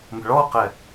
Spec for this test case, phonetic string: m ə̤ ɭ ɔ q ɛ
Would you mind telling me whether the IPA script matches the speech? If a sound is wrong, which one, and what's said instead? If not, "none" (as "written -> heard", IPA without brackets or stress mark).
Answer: none